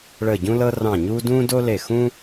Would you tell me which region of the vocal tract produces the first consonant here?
retroflex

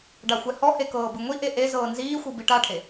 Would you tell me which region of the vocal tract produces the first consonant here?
retroflex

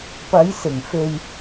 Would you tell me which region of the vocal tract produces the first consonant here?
lips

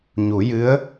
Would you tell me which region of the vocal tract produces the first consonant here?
palate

